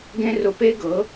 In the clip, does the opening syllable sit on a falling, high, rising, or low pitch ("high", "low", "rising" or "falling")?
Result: high